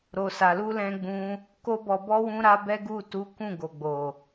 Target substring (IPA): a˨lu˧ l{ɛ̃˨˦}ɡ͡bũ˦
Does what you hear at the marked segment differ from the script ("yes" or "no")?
yes